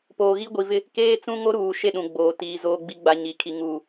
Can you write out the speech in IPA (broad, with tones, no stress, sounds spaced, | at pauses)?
p oː˨ ɣ i˦ ɡʷ i˨ v ɪ˦ | k eː˦ t͡s ũ˦ ŋ o˦ ɾ uː˨ ʃ e˦˨ ɗ ũ˨ ɡ͡b oː˨ t iː˨ z oː˨ ɡ͡b i˨ ɡ͡b a˨ ɲ i˨ kʰ i˨ ŋ uː˨